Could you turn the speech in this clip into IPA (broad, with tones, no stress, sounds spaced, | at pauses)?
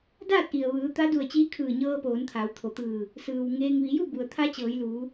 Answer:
d aː˥˨ t̚ ʔ i˩ ə̯ ʋ ɯː˩˧ t̪ a˧˥ d u˧˩ ə̯ t͡ɕ iː˧˥ kʰ ɯː˧˩ ɲ ɤː˧ p oː˩˧ n t̪ʰ a˩˧ w t̪ʰ o˩ t̪ ɯː˧˩ | s ɯː˩ w ŋ eː˧ ŋ ʋ i˩˧ j u˥˨ b u˩ ə̯ t̪ʰ a˧˥ t͡ɕ ɤː˩˧ j l uː˩˧